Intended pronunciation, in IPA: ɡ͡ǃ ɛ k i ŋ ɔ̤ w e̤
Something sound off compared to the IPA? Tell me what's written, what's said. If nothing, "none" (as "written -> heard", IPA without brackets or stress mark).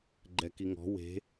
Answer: none